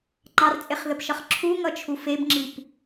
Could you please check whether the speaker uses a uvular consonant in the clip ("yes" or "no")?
yes